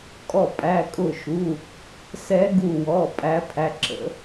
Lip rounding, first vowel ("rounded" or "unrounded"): rounded